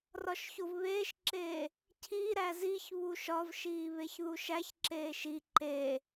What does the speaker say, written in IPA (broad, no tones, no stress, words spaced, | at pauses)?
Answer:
rɒʃçovβeːʃǁeː | cʰiɾæ ziç βuʃɒvʃiː βeçðuʃæçǁeːʃ i ǃe